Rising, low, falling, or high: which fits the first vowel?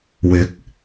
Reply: rising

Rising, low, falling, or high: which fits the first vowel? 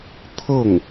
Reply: falling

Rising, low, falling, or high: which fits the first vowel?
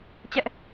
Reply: high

